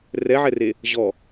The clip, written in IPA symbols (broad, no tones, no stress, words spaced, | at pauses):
rɛʕɛre | ʑɔ